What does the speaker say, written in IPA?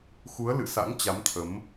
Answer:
x u˨˦ ə̯ l ɨ̰˧˨ s a̰˧˥ ŋ t͡ɕ a˨˦ m t̪ʰ ə˨˦ m

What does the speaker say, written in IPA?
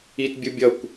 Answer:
i t bʲ ɯ bʲ ʌ kʷ

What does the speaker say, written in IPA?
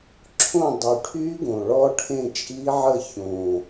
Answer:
ǁʰ õ˥˨ dˤ y˨˩ ʈʰ y˦˥ ɡ õ˨˩ ɭ ɔ˦˥ ʈʰ ẽ˥˨ t͡ʃʼ i˦˥ ʕ ə˥˨ ç õ˨˩

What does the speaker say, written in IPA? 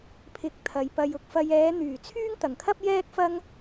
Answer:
pʰ ɪ˨ k̚ t̪ʰ ɐ˨˧ j p ɐ˧ j ʊ˧ k̚ f ɐ˧ j ɛː˨˧ n̪ yː˨˩ t͡sʰ yː˥ ŋ t̪ ɐ˨˩ ŋ kʰ ɐ˥ p̚ j ɛː˥ k̚ f ɐ˥ ŋ

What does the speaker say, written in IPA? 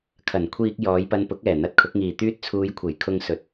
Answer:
kʰ ɐ˨˩ n kʷʰ iː˧ k̚ j ɔː˨˧ j p ɐ˧ n p ʊ˨˥ k̚ ɛː˨˩ n̪ ɐ˧ t̚ kʰ ʊ˨˥ k̚ ŋ iː˨ t̪ yː˧ t̚ t͡sʰ uː˨˧ j kʷʰ e˨˩ j kʰ ʊ˧ ŋ s ɵ˨ t̚

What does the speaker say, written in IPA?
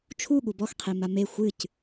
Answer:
t͡ʃʰ u ɠ u b ɔ x qʰ e m a m e xʷ ɨ c

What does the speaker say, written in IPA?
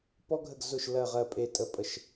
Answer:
p ɔ˦ ɡʱ ə˦˨ ɡ z ʊ˦˨ ʃ l ɜ˦˨ ʁ ɜ˦˨ pʼ e˦˨ tʼ ə˦ pʼ ə˦˨ ʃ

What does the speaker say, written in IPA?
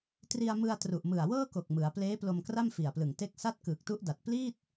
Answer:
t r i˧ a̯ m ɯ˧ a̯ t r u˨˩ ʔ m ɯ˨˩ a̯ w ɤː˥˩ k o˨˩ k̚ m ɯ˩˦ a̯ p l eː˦˥ p l o˧ m k r a˥˩ m f i˨˩ a̯ p l ɯ˨˩ ŋ t e˦˥ k̚ s a˥˩ t̚ k ɯː˨˩ k̚ t u˦˥ ʔ d a˨˩ t̚ p l iː˥˩ t̚

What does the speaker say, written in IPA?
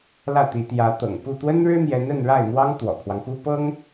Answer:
l ä˥˩ t̪ i˧˥ t̪ j ä˧˥ t̪ ɤ̰˨˩ ŋ p u˥˩ t̪ w ə˥ n ɻ ɻ̩˥ n̪ j ɛ˧˥ n ə˥˧ n ɻ a˥˩ ɪ̯ n̪ w ɑ˥ ŋ t̪ w ɔ̰˨˩ kʰ w ɑ˦ ŋ p u˥ p ɤ˥ ŋ

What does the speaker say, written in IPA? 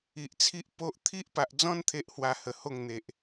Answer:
i˨ ʔ t͡sʰ i˦ ʔ p o˦ ʔ t̪ʰ i˦ ʔ p a˨ ʔ d͡z ɔ̃˦ n t̪ʰ e˦ ʔ h w a˧ h ə˨˩ h o˥˧ ŋ n̪ e˨ ʔ

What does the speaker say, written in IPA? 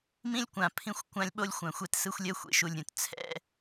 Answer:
m ĩ˦ lʲ kʷ ã˨ pʰ ĩ˦ xʷ kʷ ã˦ lʲ ɓ o˦ lʲ xʷ ã˨ xʷ ɛ˦ t s ɯ˦ xʷ lʲ ɛ˦ xʷ ḛ˨ ʃ u˨ lʲ ɾʲ ũ˨ t t͡sʰ ɛ̰˦

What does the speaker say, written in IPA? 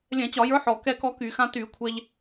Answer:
lʲ ɛ̃˧˩˧ t͡ɕ ɒ˧˩˧ j ə˞˧˥ ħ ɔ˨˩ k ɛ˥ k ɔ˥ k y˧˩˧ x ã˥ t y˧˩˧ kʷʰ ɛ˧ ʎ

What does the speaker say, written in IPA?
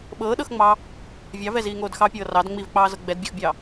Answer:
ɓ ɤː ɗ ɤ x ŋ͡m ɑː | vʲ ɑ v ɛ z iː ŋ oː d x ɑ pʲ ɤː r ɑ d ŋ͡m i v k͡p ɑː z ɤ ɡ͡b ɛ d bʲ o x bʲ ɑː

